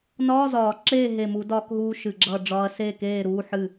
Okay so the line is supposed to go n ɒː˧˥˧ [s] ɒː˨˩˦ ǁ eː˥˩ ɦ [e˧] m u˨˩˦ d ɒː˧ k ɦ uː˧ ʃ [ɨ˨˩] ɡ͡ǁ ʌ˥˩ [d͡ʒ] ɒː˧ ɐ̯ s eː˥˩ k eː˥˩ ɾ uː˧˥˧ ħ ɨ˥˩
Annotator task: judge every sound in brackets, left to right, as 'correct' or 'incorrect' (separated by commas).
incorrect, incorrect, correct, incorrect